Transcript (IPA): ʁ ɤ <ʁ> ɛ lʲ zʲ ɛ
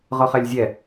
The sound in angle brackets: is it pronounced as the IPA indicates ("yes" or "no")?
no